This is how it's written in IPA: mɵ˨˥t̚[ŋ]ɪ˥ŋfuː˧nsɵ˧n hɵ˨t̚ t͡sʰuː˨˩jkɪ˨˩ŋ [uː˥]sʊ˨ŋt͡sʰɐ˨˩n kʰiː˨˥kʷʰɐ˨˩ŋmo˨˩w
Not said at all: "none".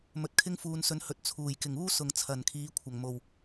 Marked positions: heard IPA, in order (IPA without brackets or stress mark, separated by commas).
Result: kʰ, uː˥